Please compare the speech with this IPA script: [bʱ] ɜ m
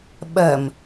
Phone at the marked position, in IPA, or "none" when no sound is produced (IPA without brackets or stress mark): ɓ